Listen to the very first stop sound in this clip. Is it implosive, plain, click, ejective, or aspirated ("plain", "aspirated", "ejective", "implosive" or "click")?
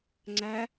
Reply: click